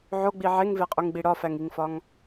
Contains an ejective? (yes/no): yes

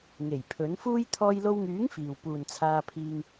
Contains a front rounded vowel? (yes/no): yes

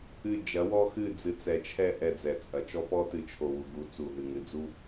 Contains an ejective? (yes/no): yes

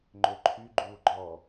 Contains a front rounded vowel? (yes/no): yes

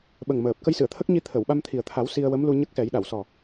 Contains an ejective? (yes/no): no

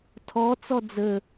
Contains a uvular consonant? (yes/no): no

